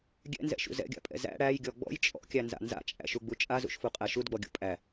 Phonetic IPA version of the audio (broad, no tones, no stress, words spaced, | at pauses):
ɡʲɛ̰nzɛ̰ʃṵ zɛ̰ɡʲa̰pʼɛ̰ zæ̰ ɽæjɡʲɔ ɡ͡bɔ̰j t͡ʃʼɔ̰kʲænza̰ nza̰t͡ʃʼæ̰ʃuɡ͡bu t͡ʃʼazṵʃfuqʼæ ʃudɡ͡bɔɡʲṵ pʼæ